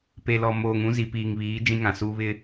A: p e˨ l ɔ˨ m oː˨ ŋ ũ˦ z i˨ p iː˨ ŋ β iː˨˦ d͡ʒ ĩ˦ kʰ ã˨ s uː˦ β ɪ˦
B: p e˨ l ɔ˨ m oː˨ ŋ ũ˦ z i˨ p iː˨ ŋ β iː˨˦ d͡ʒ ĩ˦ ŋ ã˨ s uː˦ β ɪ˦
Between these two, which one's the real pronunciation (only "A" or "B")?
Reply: B